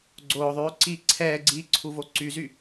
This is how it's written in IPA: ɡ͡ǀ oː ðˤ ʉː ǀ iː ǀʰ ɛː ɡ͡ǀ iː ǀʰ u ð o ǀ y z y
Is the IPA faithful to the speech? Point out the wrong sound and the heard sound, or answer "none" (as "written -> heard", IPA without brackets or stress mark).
ð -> v